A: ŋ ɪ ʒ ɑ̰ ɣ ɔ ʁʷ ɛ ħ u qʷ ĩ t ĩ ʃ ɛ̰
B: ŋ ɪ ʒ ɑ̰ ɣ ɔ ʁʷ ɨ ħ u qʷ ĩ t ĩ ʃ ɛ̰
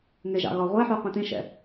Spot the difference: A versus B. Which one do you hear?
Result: A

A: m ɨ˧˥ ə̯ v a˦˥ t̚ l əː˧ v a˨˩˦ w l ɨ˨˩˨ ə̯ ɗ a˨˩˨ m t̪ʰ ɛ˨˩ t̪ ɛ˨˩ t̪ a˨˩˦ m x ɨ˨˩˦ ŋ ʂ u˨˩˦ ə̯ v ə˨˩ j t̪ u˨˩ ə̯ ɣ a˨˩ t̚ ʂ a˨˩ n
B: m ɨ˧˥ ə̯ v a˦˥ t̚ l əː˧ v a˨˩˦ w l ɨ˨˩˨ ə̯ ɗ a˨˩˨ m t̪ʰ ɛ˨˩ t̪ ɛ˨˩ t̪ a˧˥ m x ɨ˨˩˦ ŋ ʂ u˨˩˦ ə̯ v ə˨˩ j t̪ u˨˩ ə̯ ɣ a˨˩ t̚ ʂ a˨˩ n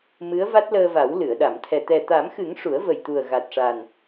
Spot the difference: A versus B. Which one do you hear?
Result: A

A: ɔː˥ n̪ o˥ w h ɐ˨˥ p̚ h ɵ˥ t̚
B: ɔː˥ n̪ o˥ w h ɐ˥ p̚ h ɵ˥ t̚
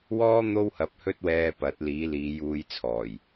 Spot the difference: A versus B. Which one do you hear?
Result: A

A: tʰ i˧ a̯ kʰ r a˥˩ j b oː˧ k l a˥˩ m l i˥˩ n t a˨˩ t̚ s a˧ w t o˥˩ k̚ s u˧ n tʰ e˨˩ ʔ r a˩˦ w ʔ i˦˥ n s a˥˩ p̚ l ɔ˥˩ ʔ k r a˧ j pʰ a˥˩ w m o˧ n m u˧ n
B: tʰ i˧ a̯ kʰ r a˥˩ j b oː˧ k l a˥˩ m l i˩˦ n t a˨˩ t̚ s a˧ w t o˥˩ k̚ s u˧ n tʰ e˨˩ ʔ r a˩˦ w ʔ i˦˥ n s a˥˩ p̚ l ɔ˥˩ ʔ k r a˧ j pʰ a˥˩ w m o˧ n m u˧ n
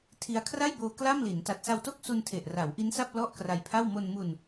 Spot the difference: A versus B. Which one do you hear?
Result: B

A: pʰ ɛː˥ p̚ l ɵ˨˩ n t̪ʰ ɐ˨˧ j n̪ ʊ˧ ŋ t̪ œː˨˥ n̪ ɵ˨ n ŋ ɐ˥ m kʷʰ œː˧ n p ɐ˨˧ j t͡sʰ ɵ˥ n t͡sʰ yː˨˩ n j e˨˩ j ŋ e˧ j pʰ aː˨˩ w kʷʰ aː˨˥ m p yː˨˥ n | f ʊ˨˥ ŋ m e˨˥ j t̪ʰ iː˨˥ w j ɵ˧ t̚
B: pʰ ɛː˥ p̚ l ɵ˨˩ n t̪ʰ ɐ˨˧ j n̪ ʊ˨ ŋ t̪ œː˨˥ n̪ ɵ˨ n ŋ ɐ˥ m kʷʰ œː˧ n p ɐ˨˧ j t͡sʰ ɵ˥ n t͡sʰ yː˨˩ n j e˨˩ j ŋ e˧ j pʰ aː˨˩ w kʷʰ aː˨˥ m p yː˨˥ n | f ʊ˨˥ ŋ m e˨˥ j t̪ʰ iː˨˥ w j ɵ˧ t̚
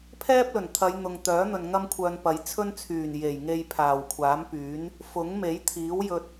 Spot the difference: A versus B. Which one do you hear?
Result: B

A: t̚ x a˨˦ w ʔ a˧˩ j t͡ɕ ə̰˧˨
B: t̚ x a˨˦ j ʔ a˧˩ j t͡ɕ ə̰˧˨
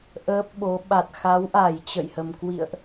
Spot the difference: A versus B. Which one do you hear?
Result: A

